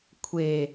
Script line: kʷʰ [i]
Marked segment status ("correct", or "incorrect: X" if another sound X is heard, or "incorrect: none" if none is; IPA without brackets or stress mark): incorrect: e